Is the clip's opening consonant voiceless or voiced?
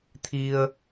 voiceless